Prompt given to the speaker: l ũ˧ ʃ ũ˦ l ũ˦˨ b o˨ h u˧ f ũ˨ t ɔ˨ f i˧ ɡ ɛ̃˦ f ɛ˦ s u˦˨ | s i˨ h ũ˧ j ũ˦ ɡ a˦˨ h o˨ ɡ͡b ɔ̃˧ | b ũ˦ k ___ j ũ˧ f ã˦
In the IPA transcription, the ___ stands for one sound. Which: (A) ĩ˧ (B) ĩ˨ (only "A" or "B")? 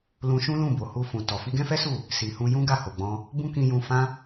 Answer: A